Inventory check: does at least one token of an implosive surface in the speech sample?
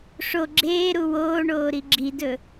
no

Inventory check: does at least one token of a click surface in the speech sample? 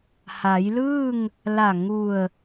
no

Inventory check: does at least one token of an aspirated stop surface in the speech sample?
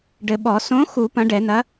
no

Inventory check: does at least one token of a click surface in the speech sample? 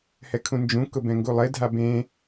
no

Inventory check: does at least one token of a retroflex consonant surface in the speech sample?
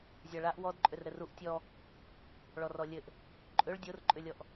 yes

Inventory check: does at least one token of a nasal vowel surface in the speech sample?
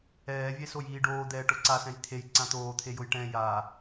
yes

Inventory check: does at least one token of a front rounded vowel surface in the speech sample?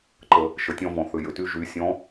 yes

